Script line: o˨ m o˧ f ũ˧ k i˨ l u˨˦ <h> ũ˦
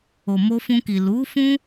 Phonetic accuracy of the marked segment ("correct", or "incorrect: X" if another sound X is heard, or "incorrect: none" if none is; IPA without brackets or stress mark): incorrect: f